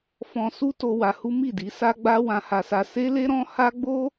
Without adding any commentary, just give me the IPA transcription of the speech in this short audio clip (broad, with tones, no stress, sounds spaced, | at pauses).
f ɔ̃˧ s u˦ t o˧ w a˧ h u˦ m i˦˨ d i˨˦ s a˦ ɡ͡b a˦ w ã˧ h a˧ s a˧ s e˦ l e˦ ɾ ɔ̃˦ h a˦ ɡ͡b o˦